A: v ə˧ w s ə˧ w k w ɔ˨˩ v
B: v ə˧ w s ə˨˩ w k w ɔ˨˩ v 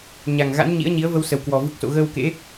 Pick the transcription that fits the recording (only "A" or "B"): B